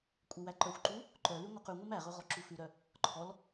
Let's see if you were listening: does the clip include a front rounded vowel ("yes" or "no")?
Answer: yes